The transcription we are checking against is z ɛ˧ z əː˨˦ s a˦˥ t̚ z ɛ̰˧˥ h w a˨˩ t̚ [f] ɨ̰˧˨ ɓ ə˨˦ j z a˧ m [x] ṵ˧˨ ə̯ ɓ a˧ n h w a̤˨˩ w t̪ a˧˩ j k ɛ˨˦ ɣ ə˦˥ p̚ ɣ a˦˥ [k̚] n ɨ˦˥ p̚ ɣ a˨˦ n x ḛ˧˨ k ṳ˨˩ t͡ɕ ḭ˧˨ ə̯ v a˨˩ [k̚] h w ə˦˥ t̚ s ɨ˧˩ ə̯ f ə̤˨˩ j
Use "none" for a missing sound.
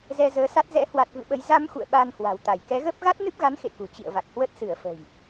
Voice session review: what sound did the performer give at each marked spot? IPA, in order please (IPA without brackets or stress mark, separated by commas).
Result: v, x, t̚, k̚